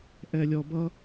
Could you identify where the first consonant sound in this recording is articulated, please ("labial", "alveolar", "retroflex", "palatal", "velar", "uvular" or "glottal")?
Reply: glottal